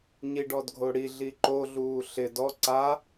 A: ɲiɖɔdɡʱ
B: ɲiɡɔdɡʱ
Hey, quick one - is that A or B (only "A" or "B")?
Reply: A